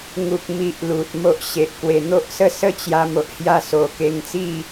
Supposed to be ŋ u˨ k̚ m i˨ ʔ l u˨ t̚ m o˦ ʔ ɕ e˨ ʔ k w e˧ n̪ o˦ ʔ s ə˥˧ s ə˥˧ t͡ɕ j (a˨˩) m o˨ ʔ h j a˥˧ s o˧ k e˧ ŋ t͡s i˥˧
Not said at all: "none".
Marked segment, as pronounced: a˧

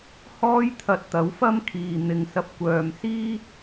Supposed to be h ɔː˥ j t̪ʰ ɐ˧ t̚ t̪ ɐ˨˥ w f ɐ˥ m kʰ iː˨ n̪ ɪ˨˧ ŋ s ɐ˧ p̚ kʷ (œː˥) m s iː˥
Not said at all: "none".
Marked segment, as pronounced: œː˨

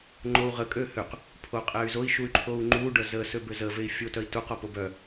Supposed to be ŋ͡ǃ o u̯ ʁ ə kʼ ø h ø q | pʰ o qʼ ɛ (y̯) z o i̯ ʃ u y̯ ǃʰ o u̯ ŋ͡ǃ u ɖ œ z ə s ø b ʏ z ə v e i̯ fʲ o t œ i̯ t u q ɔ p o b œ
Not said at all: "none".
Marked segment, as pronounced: y̯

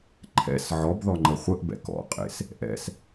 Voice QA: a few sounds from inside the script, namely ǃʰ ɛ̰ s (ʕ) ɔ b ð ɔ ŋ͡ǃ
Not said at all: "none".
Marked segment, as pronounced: ʕ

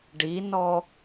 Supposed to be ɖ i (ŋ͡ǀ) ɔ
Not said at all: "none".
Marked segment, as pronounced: n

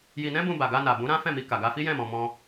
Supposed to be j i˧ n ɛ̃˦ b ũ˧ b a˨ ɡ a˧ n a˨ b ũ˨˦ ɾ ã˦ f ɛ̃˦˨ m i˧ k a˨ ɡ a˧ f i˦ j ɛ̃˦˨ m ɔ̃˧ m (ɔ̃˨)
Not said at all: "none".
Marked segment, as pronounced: ɔ̃˦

